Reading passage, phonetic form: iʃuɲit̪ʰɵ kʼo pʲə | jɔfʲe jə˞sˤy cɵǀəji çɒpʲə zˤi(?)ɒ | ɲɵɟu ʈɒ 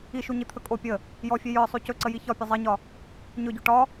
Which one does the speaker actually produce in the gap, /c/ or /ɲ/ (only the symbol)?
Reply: ɲ